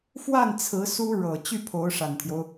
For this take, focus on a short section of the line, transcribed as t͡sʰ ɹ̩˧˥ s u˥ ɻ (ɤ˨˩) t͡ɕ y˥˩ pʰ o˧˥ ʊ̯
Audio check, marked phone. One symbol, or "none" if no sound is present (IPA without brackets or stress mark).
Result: ɤ˨˩